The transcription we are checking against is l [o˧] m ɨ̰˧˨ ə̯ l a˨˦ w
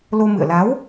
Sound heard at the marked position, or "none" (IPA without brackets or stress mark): o˧